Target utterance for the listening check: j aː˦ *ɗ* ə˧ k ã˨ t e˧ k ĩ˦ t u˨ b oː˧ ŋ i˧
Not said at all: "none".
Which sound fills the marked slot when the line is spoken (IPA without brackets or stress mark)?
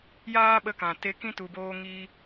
ɓ